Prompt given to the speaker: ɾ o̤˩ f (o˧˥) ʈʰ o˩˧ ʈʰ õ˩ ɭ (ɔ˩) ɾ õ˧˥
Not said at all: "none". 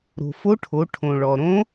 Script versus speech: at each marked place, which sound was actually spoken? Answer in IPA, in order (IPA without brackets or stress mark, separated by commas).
o˧˥, ɔ˩